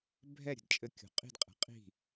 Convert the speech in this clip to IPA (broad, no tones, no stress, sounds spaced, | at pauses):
bʱ ɛ ɾʲ ə̤ d t͡ʃʼ ɘ kʲ ṳ qʼ i̤ d qʼ ɛ̤ qʼ i̤